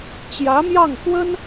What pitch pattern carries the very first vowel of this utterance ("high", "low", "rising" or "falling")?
rising